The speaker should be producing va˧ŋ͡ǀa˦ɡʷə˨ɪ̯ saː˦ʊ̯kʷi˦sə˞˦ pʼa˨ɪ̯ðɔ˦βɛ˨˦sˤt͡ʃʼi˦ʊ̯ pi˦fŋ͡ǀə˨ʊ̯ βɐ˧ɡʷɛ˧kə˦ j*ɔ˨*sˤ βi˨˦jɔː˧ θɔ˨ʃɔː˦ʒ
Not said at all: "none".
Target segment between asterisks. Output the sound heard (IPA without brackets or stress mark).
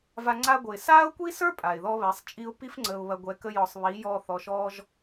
ɔ˨